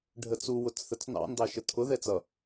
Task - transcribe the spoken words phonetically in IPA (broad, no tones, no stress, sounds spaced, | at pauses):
ɖʱ ə t͡s u w ʊ t͡s θ ə t͡s n ɑ̰ n d ɑ ʃ ə tʰ ʊ ð ɛ t͡s ʌ